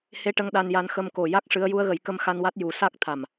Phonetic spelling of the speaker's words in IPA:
h e˧˥ ʈ ə˧ ŋ ɗ a˧ n j a˧˥ n x ə˧ m k o˨˩ j a˦˥ k̚ ʂ ɨ˧˥ ə̯ j u˧˥ ə̯ ɣ ə˨˩˦ j k ə˧ m x a˧ n w a˦˥ t̚ j u˨˩˦ s a˦˥ k̚ t̪ʰ a˨˩ m

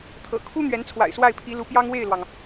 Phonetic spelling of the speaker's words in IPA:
t̪ʰ ɤ̰˨˩ kʰ u˥ n̪ ɥ ɛ˧˥ n t͡sʰ w a̰˨˩ ɪ̯ s w a˥˩ ɪ̯ pʰ i˧˥ l u˧˥ p j ɑ˥ ŋ w e˥˩ ɪ̯ l w ɑ˩ ŋ

